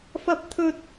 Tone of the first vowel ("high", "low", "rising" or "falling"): high